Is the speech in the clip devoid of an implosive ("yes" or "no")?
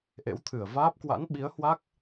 no